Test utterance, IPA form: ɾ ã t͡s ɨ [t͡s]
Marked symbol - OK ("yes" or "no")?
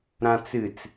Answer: yes